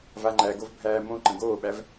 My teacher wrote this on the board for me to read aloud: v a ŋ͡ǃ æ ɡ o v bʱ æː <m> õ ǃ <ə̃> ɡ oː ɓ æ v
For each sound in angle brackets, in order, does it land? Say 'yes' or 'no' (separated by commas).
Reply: yes, yes